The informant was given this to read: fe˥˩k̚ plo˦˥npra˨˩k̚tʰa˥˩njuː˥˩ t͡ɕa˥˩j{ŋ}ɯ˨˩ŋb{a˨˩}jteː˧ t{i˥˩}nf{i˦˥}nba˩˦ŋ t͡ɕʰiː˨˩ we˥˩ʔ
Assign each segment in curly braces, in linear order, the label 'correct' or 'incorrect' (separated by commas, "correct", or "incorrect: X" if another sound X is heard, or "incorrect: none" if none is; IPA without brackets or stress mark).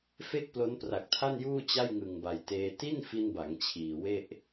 correct, correct, correct, incorrect: i˧